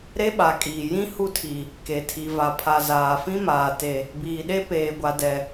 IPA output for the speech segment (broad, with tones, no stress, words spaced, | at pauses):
ɾe˦ɓa˨kʼiː˨ jĩ˦ hu˦tʰi˨ | ke˨tʰi˨ va˨pʰa˨ zaː˨fĩ˦maː˨ te˨ | biː˨ɗe˦ peː˨ɡʷa˨dɛ˨